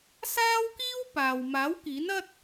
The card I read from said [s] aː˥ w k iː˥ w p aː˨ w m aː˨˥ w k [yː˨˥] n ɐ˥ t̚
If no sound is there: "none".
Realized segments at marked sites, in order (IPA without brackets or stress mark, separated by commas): s, iː˨˥